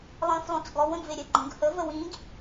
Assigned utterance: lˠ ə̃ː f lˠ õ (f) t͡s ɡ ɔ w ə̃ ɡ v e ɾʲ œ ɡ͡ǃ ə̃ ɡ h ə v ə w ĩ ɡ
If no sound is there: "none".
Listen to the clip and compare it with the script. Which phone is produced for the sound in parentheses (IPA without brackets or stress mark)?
none